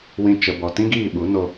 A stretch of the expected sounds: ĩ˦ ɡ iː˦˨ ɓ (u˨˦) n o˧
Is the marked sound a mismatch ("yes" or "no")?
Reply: no